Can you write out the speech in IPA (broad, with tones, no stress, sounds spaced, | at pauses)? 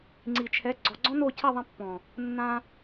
ŋ͡ǀ i˨ t͡ʃʰ ɛ˨˦ ɡ͡ǀ ɔ˨ ɡ͡ǀ ɔ̃˦ n o˦˨ cʰ ɛ˦˨ ðˤ ɛ̃˧ pː ɔ̃˨ | nː ã˧